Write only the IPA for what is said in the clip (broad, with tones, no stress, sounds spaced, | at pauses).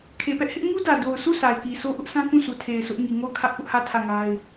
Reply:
kʰ e˨ p ɛ˦ ʔ h ɪ˦ ʔ ŋ u˦ d ä˨ d o˨ ʊ̯ sʰ u˦˨ s a˨ ɪ̯ k i˨ sʰ o˦ ʔ ʊ˦ ʔ sʰ ã˦ k ũ˦˨ s u˨ tʰ e˨ ɪ̯ s ʊ˦ ʔ ŋ i˨ ŋ o˦˨ ʊ̯ kʰ ä˦ ʔ p ʊ˦ ʔ h ä˦˨ tʰ ä˦˨ ŋ a˦ ɪ̯